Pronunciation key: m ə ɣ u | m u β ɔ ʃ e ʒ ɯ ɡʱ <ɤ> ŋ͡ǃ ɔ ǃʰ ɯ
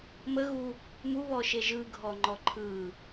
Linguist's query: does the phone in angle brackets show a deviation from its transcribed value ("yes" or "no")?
yes